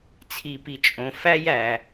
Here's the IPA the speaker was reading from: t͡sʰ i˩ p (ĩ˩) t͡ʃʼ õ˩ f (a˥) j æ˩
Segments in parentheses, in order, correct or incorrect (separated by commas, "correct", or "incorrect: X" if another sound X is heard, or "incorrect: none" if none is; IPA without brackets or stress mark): incorrect: i˩, incorrect: æ˥